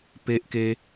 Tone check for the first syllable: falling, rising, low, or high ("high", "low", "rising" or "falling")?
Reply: high